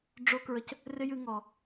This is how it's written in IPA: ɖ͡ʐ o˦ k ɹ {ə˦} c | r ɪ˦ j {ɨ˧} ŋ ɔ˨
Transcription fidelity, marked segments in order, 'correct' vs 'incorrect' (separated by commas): incorrect, correct